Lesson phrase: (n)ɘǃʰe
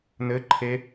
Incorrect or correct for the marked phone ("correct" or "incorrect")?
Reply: correct